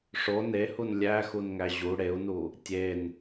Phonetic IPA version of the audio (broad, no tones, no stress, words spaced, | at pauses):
ʂo nehun lʲæxunŋæ ʑu ɽeu̯nu | tʲen